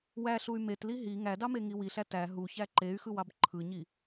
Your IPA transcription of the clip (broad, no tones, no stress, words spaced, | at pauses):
wæɬuy̯ metli ɦi ŋædɑmeŋi wiɬæ tæ ɦuçæ ǃey̯xɯwɑb ǃʰɯɲi